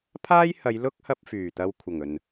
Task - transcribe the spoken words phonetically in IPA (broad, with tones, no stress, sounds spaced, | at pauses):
pʰ aː˥ j h ɐ˨˧ j l ʊ˥ k̚ h ɐ˧ p̚ f yː˨˩ t̪ ɐ˧ w kʷʰ ɐ˨˩ ŋ ɵ˨˩ n